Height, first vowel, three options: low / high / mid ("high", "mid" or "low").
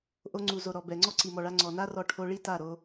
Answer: mid